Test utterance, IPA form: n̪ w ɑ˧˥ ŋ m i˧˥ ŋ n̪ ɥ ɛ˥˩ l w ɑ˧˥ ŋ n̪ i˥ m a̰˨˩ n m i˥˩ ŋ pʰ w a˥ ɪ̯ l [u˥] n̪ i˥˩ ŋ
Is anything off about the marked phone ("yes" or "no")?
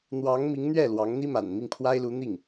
yes